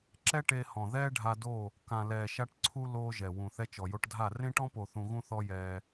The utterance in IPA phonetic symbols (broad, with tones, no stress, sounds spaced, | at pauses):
ǁ ɛ˦ ʈ e˧ h ɔ̃˨ ð ɛː˦ ɖʱ a˧ d o˦˨ | k ã˨ l ɛː˨ ʃ a˧ ʈ ǀʰ u˧ l oː˦ ʒ ɛ˨ w ũ˨ θ ɛ˧ t͡ʃ ɔ˨ j o˧ ʈ dʱ a˦˨ r ẽ˦ ʈ ɔ̃˦ p o˨ θ ũ˧ ɣ ũ˦ θ ɔ˦ j ɛː˧